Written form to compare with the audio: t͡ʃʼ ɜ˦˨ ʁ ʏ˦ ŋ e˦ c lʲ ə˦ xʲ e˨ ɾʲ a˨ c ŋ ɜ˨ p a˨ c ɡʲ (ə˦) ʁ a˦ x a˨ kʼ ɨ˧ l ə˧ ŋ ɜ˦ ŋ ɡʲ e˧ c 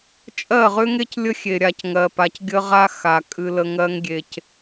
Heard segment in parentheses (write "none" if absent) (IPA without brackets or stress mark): ə˦